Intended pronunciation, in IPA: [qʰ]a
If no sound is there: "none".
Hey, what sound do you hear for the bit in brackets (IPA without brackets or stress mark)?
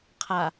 qʰ